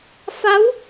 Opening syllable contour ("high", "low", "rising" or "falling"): rising